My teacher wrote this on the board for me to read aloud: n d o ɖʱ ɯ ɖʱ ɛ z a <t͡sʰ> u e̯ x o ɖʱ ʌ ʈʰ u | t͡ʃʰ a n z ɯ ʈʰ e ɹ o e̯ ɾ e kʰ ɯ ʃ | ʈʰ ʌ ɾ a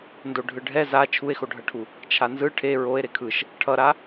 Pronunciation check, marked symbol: incorrect: t͡ʃʰ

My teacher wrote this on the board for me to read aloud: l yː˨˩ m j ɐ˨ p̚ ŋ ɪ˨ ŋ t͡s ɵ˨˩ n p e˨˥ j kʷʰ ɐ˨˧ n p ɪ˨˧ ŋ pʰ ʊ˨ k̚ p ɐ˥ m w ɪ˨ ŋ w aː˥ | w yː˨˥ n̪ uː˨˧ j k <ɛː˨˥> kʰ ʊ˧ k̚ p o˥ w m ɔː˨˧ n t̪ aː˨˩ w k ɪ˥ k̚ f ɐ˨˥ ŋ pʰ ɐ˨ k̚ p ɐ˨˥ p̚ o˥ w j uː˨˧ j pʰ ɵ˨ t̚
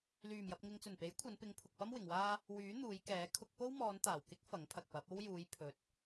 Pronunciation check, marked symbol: correct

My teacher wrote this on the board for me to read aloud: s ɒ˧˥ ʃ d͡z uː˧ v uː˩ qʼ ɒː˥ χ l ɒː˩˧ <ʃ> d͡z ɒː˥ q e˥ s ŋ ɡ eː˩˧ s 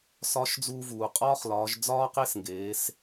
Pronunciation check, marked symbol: incorrect: ʒ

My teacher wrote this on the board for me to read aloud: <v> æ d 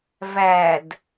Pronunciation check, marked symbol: correct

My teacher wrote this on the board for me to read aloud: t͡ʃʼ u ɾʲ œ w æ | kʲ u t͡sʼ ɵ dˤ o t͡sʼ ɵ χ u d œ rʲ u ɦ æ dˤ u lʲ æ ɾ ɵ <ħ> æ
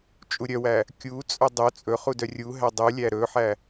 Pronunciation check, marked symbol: correct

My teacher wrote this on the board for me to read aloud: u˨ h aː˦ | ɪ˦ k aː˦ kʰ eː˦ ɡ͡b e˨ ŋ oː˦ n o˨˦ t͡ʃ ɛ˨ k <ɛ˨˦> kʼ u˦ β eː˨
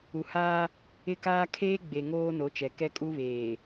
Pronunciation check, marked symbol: incorrect: ɛ˦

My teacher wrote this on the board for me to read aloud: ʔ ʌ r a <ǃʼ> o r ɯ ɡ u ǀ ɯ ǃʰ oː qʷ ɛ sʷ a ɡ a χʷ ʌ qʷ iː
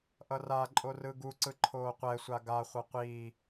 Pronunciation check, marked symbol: correct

